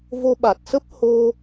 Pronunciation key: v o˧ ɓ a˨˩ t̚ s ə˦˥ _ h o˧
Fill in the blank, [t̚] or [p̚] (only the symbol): p̚